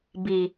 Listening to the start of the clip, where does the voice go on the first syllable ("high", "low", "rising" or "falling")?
low